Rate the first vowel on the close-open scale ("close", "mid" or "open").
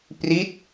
close